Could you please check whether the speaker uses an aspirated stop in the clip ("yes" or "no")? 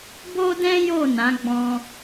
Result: no